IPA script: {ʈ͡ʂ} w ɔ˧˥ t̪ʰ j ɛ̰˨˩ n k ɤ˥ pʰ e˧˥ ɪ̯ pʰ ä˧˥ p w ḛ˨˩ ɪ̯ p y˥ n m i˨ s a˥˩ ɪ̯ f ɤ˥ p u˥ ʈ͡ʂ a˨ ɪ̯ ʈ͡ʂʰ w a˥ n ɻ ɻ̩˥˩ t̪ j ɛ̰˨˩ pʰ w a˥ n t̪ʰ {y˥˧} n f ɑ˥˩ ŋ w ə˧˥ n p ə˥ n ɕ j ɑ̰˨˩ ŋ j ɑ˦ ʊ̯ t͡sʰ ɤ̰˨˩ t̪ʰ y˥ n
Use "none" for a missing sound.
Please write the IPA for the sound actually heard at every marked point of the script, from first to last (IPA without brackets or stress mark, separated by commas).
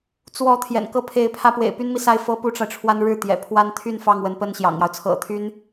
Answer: t͡s, y˥˧